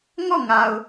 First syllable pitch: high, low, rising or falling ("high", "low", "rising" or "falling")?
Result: falling